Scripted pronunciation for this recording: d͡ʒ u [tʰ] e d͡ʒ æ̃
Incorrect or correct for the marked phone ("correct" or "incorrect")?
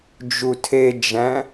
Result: correct